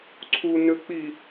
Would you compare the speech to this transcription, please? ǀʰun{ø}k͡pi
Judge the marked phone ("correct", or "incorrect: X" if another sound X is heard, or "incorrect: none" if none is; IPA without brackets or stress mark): correct